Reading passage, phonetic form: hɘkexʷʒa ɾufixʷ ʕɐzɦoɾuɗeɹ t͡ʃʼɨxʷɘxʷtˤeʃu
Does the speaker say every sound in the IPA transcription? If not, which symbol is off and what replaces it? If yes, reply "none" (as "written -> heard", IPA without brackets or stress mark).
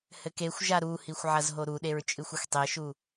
f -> h